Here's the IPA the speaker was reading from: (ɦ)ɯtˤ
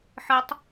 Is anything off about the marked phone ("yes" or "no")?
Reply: yes